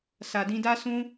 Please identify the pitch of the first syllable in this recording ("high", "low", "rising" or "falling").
low